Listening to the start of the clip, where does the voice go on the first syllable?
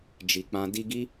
low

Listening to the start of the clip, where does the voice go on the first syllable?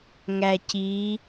low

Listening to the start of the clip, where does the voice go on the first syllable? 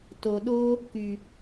low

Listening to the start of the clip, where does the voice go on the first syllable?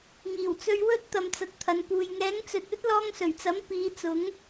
low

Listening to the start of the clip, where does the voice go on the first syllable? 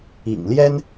low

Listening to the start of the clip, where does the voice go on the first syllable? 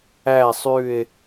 falling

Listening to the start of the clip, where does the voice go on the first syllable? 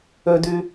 high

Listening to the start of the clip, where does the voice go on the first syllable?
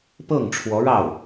falling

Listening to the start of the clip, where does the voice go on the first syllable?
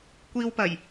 high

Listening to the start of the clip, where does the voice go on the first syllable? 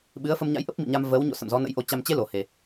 rising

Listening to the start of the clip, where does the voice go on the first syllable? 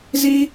high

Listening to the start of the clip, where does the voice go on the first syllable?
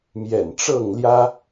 low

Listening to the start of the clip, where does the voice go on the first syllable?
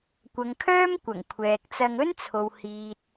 low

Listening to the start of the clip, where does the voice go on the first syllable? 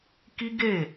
high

